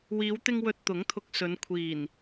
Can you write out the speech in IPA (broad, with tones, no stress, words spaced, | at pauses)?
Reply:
wiː˨˧wt̪ɪ˧ŋ wɵ˨t̚ t̪ʊ˨˥ŋt̪ʰʊ˧k̚sɵ˨˧n kʷʰiː˨˩n